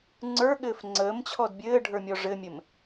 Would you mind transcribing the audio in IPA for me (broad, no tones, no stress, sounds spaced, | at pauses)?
ŋ͡ǀ ə˞ ɠ ɘː f ŋ͡ǀ əː m t͡ɕʰ ɔ d bʲ ɘː ɖʱ ə˞ mʲ ɔ ʐ ɘ mʲ ɘ m